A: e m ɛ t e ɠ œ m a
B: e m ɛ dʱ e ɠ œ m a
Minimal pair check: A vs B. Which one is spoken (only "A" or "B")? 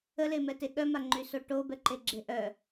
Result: A